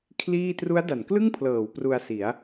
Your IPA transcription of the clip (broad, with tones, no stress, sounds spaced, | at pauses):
kʰ l iː˥˩ t r u˦˥ a̯ d a˩˦ n k l ɯ˥˩ ŋ pʰ l ɤː˩˦ w p r u˧ a̯ s i˩˦ a̯